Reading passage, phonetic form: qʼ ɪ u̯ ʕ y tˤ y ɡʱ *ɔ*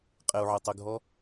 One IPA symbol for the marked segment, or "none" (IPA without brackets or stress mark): ɔ